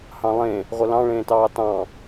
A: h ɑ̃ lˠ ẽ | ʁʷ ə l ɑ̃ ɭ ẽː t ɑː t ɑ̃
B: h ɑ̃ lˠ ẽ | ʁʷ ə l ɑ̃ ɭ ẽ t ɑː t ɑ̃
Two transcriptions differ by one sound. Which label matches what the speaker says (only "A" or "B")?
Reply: A